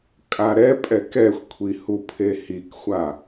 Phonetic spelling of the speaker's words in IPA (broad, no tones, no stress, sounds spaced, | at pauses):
kʼ a ɾ ɛ pʼ ɛ k ɛ xʷ kʷʰ i h u pʰ e h i k xʷ a